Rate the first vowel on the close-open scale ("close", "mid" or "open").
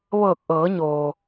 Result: mid